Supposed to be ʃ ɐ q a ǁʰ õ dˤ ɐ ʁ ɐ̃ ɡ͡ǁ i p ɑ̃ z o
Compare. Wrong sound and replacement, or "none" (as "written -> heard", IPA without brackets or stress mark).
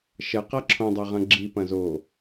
ɑ̃ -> ɐ̃